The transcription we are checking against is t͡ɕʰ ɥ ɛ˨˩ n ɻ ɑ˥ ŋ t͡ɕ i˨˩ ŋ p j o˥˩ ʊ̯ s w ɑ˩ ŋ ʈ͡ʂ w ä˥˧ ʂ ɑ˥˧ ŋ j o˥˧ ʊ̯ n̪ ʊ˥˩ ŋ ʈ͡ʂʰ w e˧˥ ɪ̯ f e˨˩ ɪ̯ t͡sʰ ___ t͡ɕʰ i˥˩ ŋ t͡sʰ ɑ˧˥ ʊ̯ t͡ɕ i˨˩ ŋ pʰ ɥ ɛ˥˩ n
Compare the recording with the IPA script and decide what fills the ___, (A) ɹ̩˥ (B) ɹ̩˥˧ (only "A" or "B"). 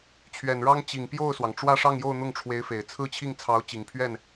B